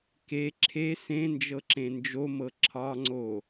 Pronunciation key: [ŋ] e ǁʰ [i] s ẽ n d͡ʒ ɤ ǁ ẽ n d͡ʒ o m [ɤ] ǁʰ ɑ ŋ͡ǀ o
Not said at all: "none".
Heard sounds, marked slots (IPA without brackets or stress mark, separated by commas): k, e, ɤ